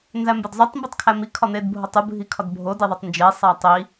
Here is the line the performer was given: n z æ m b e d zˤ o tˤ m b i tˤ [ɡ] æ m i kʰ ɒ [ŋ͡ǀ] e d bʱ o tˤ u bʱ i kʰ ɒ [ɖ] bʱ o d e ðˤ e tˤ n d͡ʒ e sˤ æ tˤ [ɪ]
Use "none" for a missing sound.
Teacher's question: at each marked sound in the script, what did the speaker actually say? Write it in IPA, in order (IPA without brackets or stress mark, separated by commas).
kʰ, n̪, d, i